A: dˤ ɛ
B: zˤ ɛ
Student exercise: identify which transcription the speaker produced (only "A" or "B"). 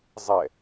B